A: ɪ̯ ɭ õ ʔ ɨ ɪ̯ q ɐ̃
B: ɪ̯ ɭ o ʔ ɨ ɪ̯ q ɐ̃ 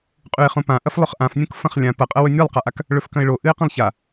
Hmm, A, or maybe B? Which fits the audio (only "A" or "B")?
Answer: B